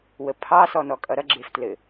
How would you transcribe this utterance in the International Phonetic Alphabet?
wəpʰɑ sɔnɔkʼʌɾʌ ɡ͡ǁeftlɘ

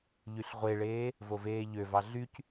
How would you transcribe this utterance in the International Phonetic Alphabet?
ʎyɬʁʷeɭeː | voveːʎøvɑ ɮyc

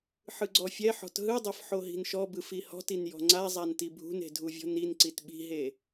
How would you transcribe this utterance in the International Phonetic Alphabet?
ħɯɡ͡ǀɔfʲɛħɔ̤t ɦɯdˤɤf ħoɦi̤nʃɔbɯf ihɔ̤tin jɔ̤ŋ͡ǀazˤan tibʱṳne̤ dʱuvʲɔ̤ninǀit ɓi̤ɦe

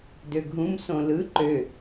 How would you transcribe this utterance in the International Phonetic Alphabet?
døɡʱũm sõlɯ ǃø

